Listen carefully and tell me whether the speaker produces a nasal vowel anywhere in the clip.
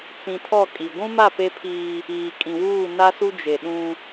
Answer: yes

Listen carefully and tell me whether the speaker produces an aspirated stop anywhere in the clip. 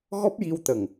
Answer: no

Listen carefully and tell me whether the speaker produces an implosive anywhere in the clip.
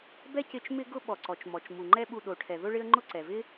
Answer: yes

